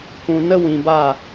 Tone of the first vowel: low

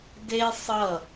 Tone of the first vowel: high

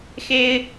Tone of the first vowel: high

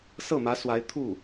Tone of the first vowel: falling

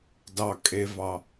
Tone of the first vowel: low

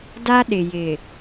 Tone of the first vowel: high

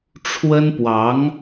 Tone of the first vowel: high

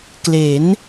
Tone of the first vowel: rising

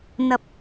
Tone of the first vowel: low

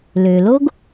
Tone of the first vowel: low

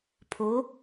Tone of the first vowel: rising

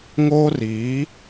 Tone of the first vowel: high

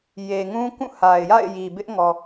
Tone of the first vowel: low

